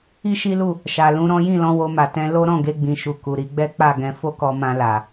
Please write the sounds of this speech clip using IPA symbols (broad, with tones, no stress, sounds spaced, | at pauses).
i˦ ʃ i˦ l u˦˨ | ʃ a˨ l ũ˧ ɾ ɔ̃˦ j ĩ˦˨ l ɔ̃˧ w o˧ m a˨ t ɛ̃˧ l o˦ ɾ ɔ̃˦˨ ɡ e˧ ɡ͡b ĩ˨ ʃ u˨ k u˨ ɾ i˧ ɡ͡b ɛ˦ k͡p a˦˨ ɡ ɛ̃˧ f o˦ k ɔ˧ m ã˧ l a˨